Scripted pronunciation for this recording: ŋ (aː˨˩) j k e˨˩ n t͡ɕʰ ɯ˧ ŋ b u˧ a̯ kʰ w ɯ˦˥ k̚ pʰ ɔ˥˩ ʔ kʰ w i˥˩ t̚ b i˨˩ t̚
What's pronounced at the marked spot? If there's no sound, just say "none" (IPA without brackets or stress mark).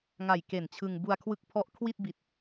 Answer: a˨˩